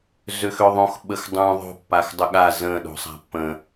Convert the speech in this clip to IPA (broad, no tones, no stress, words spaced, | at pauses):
zøxøðˤõx ɓəxdˤũ ðˤo̤ pːaxdˤəɠa zə̃ ɗo̤sˤa̤pːə̃